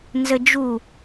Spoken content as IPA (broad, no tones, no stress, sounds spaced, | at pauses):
n z ə d͡ʒ u